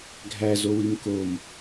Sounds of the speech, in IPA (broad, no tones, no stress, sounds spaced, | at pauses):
ɡʱ æ z o w i m k o m